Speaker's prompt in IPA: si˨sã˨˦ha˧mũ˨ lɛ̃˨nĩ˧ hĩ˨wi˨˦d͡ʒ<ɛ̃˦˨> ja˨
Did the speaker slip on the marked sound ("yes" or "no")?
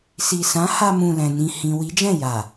no